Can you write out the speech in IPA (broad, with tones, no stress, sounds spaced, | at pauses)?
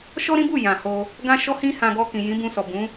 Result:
ʃ ɔ˦ ɾ ĩ˦ b u˦˨ j ã˨ h o˧ | ɡ ã˦ ʃ ɔ˦ h ĩ˦ h ã˧ ɡ ɔ˧ k ĩ˨ j ĩ˨˦ b ũ˧ s ɔ˨ b ũ˨˦